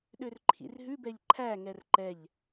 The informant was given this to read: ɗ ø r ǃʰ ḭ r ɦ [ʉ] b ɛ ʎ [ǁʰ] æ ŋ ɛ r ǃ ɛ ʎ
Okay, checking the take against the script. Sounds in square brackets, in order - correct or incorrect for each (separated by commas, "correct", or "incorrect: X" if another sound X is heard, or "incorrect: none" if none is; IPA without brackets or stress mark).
correct, incorrect: ǃʰ